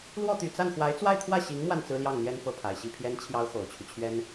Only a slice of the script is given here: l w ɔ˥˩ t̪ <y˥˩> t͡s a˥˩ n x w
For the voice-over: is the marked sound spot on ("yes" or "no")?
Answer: no